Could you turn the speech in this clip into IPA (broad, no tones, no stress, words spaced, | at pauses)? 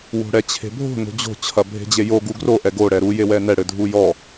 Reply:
wo̤ɽɛt͡ɕʰe̤bʱo̤ no̤d͡ʑo̤ t͡ɕʰɐbʱe̤d͡ʑejo ɡuɡro ʔɛɡo ɽɛɾu jewɛnɛ ɽɘdʱujɔ